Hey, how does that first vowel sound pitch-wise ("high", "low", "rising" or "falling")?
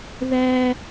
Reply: high